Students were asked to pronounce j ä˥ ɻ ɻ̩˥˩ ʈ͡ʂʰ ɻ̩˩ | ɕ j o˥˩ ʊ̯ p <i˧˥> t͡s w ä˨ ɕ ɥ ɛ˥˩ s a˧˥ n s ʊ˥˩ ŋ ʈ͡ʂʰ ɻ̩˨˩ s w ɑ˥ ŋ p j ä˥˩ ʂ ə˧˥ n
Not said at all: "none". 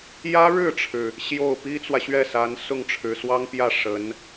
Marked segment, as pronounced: i˥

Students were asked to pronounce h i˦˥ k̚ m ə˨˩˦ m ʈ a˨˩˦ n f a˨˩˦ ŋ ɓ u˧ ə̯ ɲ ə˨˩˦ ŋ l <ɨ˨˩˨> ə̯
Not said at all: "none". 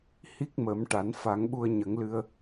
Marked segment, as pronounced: ɨ˧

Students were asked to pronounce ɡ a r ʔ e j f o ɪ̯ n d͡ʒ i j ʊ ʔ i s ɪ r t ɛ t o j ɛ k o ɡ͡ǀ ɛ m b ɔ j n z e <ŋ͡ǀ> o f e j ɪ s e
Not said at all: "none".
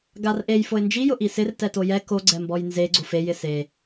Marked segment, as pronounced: ɡ͡ǀ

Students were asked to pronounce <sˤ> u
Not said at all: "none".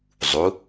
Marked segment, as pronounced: zˤ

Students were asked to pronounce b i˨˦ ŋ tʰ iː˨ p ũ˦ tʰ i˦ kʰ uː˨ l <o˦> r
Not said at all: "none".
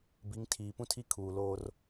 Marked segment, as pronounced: oː˦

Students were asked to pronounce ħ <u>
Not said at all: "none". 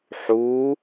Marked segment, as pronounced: u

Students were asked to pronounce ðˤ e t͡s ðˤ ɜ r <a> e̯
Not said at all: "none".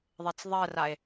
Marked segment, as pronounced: a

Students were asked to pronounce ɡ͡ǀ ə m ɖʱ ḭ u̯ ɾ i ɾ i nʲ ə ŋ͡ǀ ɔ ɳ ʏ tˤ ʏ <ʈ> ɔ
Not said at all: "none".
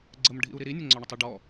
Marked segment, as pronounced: ɖ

